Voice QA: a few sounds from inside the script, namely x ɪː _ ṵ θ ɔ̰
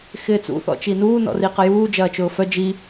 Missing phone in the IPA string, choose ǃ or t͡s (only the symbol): t͡s